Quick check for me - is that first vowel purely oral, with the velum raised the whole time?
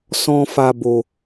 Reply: no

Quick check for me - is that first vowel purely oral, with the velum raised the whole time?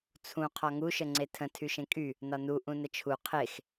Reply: no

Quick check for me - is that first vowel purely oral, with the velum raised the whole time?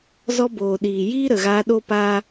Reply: yes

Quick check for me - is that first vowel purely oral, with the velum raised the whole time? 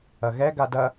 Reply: yes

